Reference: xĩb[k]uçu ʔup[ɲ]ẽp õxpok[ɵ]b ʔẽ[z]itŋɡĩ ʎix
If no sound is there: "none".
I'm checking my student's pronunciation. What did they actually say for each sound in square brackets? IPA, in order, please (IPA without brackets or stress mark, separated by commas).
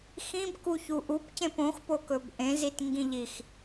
k, c, ɵ, z